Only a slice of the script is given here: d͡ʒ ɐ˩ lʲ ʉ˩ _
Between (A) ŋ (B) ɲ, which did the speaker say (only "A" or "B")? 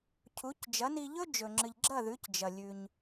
B